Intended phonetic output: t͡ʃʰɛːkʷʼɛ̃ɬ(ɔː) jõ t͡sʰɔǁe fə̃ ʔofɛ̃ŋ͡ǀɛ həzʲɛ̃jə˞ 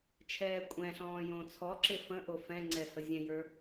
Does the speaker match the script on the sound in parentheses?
no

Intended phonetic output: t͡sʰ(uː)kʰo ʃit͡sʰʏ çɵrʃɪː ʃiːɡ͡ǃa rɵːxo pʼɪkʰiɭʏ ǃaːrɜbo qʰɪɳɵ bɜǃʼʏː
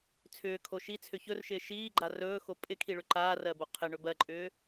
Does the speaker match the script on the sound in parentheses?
no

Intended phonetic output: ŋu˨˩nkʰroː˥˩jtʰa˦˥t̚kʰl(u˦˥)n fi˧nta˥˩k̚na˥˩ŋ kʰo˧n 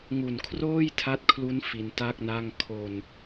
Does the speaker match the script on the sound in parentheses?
yes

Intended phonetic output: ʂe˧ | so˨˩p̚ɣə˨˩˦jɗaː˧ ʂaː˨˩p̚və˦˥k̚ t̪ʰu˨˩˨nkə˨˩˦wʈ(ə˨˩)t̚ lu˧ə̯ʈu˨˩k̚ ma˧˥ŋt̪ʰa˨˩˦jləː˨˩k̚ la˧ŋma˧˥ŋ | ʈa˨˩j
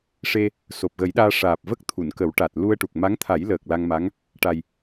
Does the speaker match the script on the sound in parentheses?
no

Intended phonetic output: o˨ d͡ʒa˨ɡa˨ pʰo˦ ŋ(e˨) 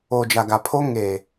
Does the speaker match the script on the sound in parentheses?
yes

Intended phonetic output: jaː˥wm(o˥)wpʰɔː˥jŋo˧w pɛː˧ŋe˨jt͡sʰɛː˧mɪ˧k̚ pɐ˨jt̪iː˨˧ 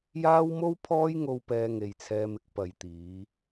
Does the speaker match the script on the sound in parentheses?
yes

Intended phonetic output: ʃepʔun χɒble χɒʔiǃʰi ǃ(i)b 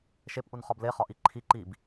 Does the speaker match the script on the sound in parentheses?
yes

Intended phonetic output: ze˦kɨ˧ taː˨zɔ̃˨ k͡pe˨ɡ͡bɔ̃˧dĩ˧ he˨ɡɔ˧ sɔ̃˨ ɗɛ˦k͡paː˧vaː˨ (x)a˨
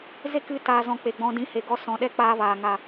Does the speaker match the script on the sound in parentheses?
no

